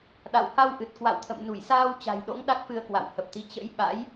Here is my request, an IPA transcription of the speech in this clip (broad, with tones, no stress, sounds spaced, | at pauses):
ɗ a̰˧˨ w h a˧ w ʔ ɨ˨˩ t̚ k w a̰˧˨ w t̪ʰ ə̰˧˨ m n u˧˩ j s aː˧ w t͡ɕ a̤˨˩ j ɗ o̰˧˥ ŋ ɗ a˦˥ k̚ f ɨ˧ ə̯ k w a̰˧˨ w h ə˨˩ p̚ t̪ i˨˦ t͡ɕ ə̰˧˥ j ɓ a̰˧˥ j